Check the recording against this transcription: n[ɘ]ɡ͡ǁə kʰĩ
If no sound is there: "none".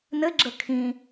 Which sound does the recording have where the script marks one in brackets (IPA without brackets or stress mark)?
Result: ɘ